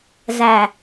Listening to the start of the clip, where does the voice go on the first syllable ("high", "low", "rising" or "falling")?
low